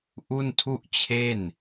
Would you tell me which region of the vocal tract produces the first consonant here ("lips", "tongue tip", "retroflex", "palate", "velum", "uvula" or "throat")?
throat